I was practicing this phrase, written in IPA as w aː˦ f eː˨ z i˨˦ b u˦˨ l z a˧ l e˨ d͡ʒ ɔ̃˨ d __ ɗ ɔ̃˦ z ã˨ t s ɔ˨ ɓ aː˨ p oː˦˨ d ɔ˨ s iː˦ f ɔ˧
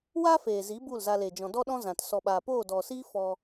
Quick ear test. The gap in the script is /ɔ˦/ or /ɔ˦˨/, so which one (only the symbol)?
ɔ˦